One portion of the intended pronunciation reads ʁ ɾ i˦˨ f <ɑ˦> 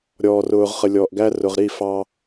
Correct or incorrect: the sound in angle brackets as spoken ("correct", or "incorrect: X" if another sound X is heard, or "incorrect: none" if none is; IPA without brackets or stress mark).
correct